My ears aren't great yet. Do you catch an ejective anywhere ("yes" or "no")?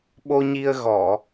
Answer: no